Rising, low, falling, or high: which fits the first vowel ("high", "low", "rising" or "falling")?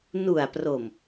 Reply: low